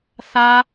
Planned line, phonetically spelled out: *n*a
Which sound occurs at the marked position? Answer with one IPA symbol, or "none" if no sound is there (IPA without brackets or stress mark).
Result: θ